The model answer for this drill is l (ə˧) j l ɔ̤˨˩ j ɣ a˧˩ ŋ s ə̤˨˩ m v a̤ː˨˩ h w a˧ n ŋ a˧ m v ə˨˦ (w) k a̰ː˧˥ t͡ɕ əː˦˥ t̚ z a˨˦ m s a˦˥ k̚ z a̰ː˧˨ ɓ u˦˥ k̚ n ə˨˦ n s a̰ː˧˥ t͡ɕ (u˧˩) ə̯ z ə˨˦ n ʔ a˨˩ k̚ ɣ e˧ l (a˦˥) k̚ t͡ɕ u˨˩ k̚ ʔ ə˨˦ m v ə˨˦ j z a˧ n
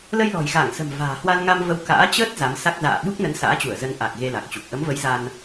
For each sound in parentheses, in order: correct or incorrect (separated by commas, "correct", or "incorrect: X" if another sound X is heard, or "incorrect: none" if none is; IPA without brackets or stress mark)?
correct, correct, correct, incorrect: a˨˩